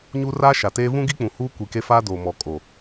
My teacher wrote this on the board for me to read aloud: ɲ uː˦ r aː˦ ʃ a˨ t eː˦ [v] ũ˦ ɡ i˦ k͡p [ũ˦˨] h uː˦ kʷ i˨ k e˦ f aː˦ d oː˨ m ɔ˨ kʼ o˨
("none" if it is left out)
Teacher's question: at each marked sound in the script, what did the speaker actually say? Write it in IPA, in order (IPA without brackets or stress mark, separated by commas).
v, ũ˨